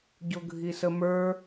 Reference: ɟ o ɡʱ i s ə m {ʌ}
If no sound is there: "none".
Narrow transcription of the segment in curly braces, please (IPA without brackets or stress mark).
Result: ə˞